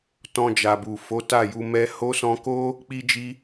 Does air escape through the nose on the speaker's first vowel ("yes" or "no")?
yes